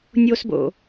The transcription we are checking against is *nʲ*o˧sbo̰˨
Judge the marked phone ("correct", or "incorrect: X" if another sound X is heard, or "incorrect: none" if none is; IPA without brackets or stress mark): correct